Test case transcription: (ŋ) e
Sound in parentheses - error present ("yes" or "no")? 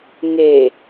no